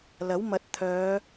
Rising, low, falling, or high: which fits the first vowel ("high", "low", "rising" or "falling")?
rising